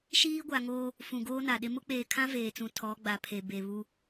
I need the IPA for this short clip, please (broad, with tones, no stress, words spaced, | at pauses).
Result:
ʃiː˦ɡʷa˨ŋoː˦ | fũ˨ɡoː˦na˨ɗɪ˦ mʊ˦k͡peː˨kʰã˦ veː˨t͡sũ˨ tʰɔ˨˦ɡ͡ba˨pʰe˨ be˨βu˦